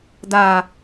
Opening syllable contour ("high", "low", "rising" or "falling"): low